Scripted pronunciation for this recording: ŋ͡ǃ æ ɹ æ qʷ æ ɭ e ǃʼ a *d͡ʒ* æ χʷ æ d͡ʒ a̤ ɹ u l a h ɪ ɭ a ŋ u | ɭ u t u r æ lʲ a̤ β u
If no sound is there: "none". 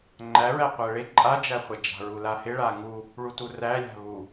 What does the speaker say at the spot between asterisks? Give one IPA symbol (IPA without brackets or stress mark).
d͡ʒ